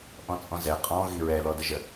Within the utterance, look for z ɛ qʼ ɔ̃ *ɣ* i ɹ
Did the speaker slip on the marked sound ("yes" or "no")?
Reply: no